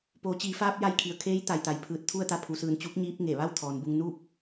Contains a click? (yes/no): no